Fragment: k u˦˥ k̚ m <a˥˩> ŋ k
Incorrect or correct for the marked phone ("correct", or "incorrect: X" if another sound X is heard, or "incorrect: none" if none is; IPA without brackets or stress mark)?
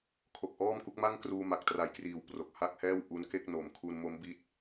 correct